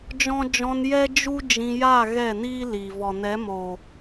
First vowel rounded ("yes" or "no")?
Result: yes